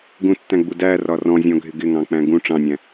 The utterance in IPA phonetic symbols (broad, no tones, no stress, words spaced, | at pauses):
ɡũtːæ̃ɡ͡bu dærɒ rɔ̃zʲɔ̃ɡʱɪ ɡɪŋɑ̃k͡pæ̃ ɡũ ʈ͡ʂɑ̃nʲæ̃